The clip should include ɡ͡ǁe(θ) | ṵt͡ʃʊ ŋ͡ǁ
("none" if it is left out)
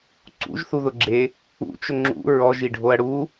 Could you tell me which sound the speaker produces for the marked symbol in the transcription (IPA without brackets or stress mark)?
none